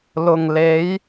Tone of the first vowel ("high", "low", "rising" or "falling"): low